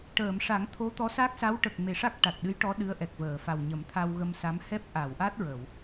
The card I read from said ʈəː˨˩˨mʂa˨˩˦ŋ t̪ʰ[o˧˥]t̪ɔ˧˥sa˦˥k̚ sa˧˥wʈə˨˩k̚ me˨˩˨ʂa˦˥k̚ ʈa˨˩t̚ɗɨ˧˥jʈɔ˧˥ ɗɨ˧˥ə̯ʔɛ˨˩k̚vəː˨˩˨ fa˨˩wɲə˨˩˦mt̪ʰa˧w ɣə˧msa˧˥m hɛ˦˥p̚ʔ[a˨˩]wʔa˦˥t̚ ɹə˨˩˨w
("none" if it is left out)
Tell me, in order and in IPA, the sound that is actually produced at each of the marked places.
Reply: o˧˥, a˨˩˨

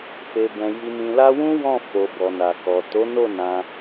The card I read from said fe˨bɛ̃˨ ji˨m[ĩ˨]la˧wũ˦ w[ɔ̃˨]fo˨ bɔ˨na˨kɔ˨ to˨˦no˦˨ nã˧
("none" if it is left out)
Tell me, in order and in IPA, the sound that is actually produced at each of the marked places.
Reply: ĩ˨, ɔ̃˦˨

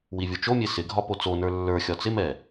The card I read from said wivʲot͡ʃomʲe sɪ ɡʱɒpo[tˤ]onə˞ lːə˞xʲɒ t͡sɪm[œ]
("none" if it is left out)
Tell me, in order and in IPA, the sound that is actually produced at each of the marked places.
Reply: t͡s, ɛ

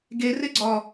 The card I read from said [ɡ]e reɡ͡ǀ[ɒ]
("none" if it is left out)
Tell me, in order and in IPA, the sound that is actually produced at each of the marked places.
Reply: ɡ, ɒ

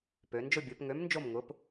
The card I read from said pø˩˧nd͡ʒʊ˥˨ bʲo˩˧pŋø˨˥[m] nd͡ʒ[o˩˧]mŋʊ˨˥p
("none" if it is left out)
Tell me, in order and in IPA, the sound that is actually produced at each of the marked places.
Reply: m, o˥˨

